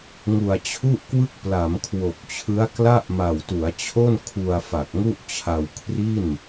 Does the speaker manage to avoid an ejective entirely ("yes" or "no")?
yes